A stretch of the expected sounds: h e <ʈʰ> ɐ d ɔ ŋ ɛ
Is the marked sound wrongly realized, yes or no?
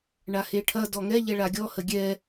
no